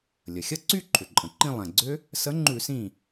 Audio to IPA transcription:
lʲ ə˩ xʲ ə˥˧ ǀ y˥˧ ǃʰ ʏ˩ ǃʼ ə̃˩ ǃ ĩ˥˧ lˠ ɛ̃˩ ɡ͡ǀ ʏ˦˥ | s ə˨˥ ŋ͡ǃ ʉ˧˩˧ s ĩ˧˩

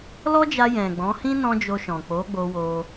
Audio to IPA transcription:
l ɔ˦ d͡ʒ a˧ j ɛ̃˨ ɡ͡b ɔ̃˨˦ h ĩ˦ n ɔ̃˦ d͡ʒ o˧ ʃ ɔ̃˨ k͡p o˨˦ ɡ͡b o˧ w o˧

